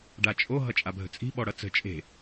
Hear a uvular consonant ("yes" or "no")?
no